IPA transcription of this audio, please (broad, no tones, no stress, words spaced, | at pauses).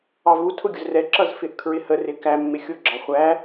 ɑvu tʰʊɡʲʊzrɛ ǁʌzfɪʔkʰɹɪhə rɪkæ mːɪxʲʊ ɡ͡ǁɑχʷæ